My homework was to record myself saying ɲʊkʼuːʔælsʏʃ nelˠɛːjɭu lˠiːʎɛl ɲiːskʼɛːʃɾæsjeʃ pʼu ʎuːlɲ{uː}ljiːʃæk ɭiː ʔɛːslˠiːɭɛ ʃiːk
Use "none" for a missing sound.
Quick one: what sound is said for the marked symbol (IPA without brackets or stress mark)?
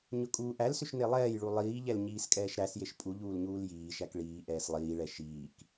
uː